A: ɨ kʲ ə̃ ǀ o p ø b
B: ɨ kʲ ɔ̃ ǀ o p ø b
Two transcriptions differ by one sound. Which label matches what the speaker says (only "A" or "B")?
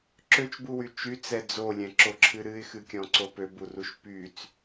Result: B